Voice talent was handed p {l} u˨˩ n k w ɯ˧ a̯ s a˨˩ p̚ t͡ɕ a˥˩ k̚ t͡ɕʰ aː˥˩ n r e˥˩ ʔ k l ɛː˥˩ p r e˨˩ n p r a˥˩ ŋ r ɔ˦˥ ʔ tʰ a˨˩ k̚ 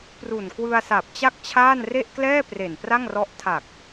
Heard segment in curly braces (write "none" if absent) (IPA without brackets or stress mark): r